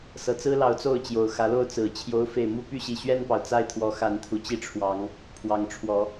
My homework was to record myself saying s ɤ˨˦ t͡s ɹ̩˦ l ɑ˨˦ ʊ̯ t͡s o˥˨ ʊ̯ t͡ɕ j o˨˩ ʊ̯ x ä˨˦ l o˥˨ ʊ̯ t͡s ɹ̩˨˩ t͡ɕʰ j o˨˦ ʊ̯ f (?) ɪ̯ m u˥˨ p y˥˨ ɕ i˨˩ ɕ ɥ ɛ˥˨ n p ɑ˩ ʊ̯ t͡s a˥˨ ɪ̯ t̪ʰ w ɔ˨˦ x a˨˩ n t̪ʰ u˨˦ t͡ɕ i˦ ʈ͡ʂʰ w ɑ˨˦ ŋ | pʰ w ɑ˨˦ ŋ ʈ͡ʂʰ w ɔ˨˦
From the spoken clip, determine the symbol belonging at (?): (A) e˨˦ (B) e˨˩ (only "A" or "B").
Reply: B